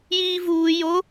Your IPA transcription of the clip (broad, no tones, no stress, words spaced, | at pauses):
jiːvuː jo